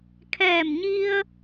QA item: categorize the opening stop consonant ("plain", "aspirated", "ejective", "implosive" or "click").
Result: aspirated